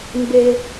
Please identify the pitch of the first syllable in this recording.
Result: low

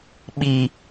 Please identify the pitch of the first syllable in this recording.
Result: low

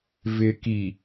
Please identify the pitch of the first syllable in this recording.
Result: low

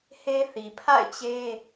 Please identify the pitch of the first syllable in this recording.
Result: high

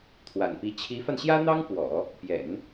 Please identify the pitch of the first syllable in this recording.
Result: low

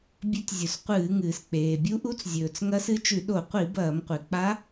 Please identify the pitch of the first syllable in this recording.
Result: rising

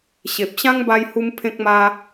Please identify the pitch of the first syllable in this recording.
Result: low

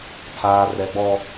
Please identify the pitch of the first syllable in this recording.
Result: low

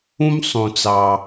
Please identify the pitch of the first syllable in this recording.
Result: high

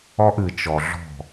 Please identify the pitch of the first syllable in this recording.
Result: high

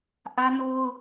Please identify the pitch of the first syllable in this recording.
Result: high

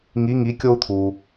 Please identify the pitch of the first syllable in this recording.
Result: rising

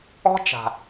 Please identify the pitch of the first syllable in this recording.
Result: high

